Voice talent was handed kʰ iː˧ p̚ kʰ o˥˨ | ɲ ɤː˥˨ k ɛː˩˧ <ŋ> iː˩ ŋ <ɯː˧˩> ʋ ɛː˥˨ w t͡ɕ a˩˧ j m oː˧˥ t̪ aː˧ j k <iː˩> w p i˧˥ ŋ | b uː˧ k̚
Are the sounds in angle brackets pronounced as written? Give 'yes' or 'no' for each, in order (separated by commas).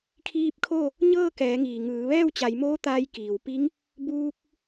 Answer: yes, no, yes